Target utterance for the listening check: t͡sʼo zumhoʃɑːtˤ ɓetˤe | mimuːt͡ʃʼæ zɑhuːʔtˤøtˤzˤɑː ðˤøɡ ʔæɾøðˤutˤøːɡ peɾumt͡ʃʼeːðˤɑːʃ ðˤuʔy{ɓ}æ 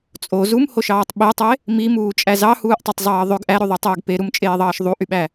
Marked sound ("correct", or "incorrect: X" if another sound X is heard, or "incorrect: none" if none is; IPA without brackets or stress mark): correct